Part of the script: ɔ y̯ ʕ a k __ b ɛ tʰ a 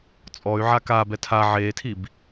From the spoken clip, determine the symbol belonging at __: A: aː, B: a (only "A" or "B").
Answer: A